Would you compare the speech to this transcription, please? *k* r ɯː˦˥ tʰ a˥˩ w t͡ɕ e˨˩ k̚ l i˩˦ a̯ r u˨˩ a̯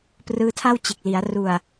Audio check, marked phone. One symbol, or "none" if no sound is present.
p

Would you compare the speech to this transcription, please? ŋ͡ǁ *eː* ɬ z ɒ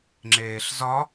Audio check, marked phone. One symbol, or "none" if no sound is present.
eː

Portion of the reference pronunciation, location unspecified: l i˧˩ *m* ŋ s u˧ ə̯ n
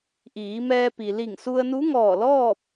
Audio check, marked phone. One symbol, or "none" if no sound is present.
none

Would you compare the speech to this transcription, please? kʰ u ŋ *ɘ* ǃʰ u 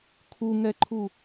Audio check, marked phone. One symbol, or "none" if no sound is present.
ɛ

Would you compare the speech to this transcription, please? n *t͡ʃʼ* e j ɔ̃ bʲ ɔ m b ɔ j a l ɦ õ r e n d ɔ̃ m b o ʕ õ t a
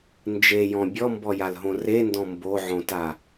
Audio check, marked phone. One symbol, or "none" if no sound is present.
d͡ʒ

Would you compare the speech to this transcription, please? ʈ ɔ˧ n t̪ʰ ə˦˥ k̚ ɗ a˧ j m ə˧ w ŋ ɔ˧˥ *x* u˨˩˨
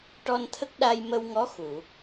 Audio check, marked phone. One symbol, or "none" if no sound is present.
x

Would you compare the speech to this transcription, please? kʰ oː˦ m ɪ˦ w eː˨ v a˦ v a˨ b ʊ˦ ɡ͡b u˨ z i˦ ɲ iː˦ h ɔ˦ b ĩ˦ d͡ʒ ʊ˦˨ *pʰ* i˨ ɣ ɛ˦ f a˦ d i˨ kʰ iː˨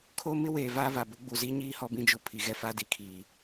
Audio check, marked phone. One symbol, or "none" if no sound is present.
pʰ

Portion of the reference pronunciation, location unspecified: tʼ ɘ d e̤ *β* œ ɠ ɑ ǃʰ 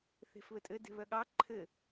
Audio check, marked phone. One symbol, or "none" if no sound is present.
β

